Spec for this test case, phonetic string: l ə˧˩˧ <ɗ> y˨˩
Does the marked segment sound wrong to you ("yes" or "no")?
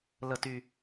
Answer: yes